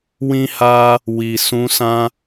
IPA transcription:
wĩ˦ha˦ | wi˨ sũ˧sã˦

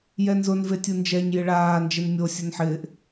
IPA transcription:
jɛnzʊn vetʲund͡ʒɛɲ jɪɭaː nd͡ʒenmʲo sʲʊnħɪːʔ

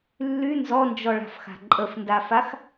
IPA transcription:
lːy nzɔnd͡ʒɔɭa̤fxa̤ ǃʼəfndafax

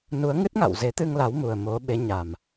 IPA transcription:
nu˨˦ə̯ŋɨ˦˥t̚ŋa̰˧˨w ze˨˦t̪ɨ˧ŋla˨˦w mu˨˩ə̯ mo˨˦ ɓe˨˦ɲa˨˩m

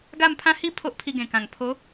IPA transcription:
ɡa˥˧mpʰã˥˧ hi˥˧ pʰo˦ʔpʰi˧ɡẽ˨˩kã˨˩ŋ pʰo˨˦

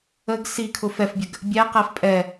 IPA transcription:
əɡ sikʰʊ fɛfbʲəɡ | bʲæqæf pʼɛ

